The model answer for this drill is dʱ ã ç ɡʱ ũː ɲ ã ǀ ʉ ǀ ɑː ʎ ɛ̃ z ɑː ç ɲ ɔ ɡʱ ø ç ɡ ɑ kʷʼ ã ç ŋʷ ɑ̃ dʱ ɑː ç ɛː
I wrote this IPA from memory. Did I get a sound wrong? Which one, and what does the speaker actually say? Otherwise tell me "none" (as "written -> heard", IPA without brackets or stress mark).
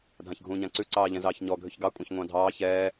none